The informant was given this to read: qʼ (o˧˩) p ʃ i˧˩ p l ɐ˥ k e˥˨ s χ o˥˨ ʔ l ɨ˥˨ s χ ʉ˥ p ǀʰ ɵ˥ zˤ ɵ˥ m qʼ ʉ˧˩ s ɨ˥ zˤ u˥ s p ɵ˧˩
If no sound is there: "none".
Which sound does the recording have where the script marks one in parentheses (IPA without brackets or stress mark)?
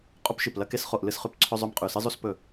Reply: o˥